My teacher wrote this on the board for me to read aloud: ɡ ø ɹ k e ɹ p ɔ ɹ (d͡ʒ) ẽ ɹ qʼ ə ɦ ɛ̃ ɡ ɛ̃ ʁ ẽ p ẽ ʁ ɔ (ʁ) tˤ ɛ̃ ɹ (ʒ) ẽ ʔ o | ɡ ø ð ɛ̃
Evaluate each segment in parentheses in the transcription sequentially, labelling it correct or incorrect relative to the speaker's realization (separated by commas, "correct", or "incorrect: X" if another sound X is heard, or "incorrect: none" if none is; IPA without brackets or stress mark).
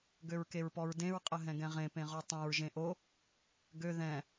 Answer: incorrect: d, incorrect: none, correct